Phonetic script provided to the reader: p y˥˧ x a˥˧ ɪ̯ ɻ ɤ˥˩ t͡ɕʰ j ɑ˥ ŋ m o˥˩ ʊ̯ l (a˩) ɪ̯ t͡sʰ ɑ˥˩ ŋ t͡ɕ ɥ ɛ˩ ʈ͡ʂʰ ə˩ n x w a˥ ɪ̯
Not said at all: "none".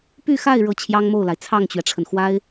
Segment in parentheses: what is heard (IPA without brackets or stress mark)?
a˩